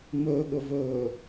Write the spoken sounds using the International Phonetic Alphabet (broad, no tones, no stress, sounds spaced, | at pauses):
m ɵː ɠ ɵ v ɵː